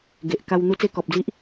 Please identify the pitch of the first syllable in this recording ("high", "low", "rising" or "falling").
low